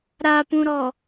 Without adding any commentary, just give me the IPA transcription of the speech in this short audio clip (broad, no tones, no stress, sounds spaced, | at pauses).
ɾ a p ũ ɾ ɔ